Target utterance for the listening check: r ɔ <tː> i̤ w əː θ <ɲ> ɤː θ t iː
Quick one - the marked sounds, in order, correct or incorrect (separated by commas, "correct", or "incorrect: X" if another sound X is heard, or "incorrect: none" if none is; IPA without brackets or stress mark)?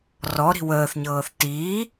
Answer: incorrect: ɾ, correct